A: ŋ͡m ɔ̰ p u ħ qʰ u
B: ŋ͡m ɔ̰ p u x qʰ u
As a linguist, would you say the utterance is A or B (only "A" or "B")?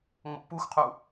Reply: B